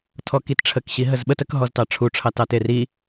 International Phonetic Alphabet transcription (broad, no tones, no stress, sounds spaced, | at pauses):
tʰ ɔ k i t ʈ͡ʂʰ ə k ɕ i ɦ ə z ɓ ə t ə k ɦ ɔ z t ɑ ʈ͡ʂʰ u ʈ͡ʂʰ ɑ t ɑ t e r i